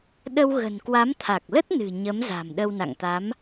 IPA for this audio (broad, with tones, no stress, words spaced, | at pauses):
ɗə˧wɣə̤˨˩nkwa˨˦m t̪ʰa˨˩k̚lə˦˥t̚nɨ̤˨˩ ɲə˨˦mza̤˨˩m ɗə˧wna̰˧˨ŋt̪a˨˦m